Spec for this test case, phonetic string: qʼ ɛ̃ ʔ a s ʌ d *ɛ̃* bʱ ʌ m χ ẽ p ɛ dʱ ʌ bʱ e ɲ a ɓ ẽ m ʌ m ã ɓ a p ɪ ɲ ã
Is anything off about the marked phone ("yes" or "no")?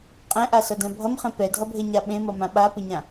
no